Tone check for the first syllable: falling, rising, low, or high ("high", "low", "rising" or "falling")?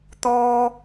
high